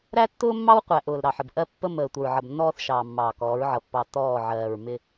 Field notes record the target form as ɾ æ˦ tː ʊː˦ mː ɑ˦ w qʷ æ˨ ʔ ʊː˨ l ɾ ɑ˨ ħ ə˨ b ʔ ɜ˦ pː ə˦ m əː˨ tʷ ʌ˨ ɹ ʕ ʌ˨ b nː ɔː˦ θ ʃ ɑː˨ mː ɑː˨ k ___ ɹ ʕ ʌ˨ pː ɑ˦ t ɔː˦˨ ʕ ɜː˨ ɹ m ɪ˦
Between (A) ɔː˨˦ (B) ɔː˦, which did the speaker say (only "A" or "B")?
A